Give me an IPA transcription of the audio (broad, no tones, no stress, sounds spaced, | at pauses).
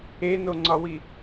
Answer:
e n o ŋ͡ǀ ɒ w i